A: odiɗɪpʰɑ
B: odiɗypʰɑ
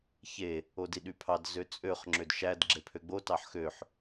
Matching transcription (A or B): B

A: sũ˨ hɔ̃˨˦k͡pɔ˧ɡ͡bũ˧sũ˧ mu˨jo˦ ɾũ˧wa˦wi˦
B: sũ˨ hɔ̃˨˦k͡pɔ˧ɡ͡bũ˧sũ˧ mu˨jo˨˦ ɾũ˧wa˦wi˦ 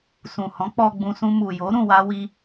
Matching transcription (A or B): B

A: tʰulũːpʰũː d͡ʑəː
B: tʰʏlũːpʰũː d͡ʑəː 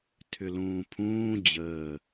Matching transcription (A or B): B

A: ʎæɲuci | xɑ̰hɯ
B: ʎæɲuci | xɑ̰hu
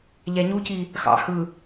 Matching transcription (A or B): A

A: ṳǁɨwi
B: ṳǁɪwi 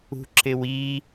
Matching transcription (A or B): B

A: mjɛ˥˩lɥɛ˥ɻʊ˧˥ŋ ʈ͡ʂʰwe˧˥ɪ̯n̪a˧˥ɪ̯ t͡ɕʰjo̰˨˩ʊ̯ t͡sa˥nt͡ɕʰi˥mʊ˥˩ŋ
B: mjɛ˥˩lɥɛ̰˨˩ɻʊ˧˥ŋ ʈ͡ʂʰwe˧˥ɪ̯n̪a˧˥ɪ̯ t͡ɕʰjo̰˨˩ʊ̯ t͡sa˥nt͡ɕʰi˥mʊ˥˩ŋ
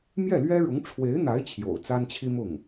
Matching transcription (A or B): A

